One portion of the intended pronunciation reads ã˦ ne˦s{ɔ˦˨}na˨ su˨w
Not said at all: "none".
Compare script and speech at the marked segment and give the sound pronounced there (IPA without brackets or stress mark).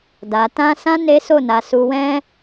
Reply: o˦˨